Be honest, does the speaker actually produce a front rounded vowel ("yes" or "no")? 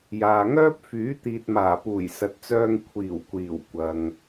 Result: yes